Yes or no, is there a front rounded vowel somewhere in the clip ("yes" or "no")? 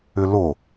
yes